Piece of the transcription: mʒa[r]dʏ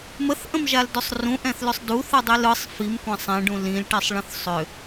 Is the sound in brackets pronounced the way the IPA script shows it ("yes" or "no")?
no